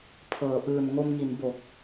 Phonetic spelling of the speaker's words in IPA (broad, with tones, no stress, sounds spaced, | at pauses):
pʰ ɤː˩˦ ʔ ɯː˨˩ n ŋ o˧ m ŋ i˩˦ n b o˨˩ k̚